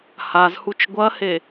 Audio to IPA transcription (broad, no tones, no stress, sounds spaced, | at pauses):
h a z h u t͡ʃ ɡʷ ɐ h e